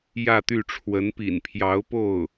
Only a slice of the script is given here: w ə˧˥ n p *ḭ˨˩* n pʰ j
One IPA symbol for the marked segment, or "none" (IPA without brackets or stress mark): ḭ˨˩